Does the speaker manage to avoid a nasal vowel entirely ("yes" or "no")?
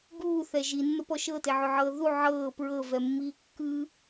yes